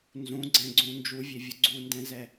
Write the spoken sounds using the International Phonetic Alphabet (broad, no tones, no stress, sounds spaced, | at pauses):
n z ũ ɡ͡ǀ ɛ̃ ɡ͡ǀ ũ n d͡ʒ u vʲ e vʲ ʊ ɡ͡ǀ u n d ɛ̃ z ɛ